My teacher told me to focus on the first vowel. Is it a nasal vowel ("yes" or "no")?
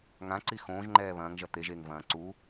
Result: yes